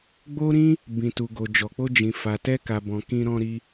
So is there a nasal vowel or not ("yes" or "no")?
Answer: yes